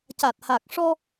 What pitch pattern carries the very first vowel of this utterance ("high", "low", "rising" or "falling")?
low